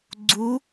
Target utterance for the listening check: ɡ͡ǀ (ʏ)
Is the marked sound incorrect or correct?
incorrect